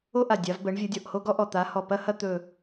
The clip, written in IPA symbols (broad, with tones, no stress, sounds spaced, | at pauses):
o˥ ʔ a˧˩ dʲ a˨˦ v b ə˨˦ ɳ vʲ ə˨˦ dʲ ɔ˧˩ ʔ h o˥ ɡ ɔ˥ ʔ ɔ˧˩ t̪ a˨˦ h ɔ˧˩ p ɐ˥ h ɐ˥ t̪ ɵ˧˩